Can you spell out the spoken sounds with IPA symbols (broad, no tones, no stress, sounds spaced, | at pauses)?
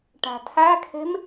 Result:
ʈ æ̤ tʰ æ kʰ e̤ m